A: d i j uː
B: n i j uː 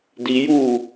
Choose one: A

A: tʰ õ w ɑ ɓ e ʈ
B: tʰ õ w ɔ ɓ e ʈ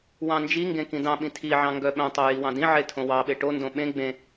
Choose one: A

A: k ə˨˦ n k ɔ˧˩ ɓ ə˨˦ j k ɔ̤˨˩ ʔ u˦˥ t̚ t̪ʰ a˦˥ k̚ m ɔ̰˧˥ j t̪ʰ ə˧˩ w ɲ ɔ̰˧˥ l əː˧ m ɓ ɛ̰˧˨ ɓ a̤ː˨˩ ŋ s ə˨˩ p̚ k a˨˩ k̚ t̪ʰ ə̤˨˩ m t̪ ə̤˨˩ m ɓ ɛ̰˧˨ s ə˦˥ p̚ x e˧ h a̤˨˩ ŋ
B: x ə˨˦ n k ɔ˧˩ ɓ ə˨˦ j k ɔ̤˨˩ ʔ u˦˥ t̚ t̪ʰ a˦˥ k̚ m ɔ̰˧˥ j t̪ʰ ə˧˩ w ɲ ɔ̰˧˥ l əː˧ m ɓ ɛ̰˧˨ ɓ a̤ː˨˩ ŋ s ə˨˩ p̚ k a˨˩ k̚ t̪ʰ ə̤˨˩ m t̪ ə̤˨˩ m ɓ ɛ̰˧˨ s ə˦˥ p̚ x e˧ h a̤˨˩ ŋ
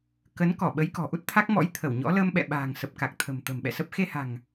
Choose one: A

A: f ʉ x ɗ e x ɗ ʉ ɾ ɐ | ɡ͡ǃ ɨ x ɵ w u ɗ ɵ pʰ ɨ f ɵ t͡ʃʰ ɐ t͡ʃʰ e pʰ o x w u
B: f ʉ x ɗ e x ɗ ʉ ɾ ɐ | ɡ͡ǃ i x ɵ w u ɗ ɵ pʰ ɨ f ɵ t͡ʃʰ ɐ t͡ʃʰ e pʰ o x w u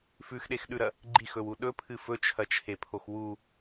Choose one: B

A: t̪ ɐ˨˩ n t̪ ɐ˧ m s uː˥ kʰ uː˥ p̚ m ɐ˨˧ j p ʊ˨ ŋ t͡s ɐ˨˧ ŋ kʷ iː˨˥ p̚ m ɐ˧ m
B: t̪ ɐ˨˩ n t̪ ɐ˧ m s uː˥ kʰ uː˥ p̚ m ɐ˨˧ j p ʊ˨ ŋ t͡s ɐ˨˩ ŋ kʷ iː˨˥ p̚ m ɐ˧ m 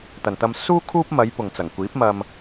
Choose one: B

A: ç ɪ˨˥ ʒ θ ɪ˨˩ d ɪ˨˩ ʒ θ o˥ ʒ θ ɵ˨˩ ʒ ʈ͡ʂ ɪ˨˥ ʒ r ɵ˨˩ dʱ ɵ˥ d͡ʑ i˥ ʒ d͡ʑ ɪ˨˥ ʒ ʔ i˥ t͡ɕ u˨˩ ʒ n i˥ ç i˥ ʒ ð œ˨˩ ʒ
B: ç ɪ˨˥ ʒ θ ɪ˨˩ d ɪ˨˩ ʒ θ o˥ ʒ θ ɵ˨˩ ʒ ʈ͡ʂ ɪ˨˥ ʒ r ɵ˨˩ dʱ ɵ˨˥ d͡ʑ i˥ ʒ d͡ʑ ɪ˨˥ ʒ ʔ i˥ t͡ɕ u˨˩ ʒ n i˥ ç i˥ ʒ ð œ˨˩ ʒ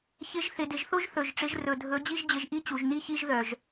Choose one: B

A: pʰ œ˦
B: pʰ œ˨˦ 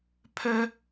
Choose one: A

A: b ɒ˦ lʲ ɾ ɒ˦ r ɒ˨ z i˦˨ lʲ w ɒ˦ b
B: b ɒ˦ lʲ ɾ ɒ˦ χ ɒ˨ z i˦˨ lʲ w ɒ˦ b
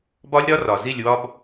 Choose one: A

